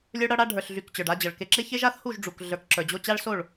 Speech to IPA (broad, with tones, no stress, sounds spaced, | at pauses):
lʲ ə˞˦ ɽ ʌ˦ ɽ a˦ ɖʱ ə˞˨ ɬ ɮ y˨ k t͡ɕ ə˞˨ ɖ a˧ d͡ʑ ʌ˨ ɭ k e˨ ǁ e˧ ç e˦ ʒ a˦ θ h u˦˨ ʒ ɖ͡ʐ u˨ k ɮ ə˞˨ k ǁ ə˞˨ d͡ʑ o˧ t͡ɕ a˦ ɭ s o˦˨ ɭ